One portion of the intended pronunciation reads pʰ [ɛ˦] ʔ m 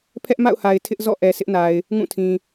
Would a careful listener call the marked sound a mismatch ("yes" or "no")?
no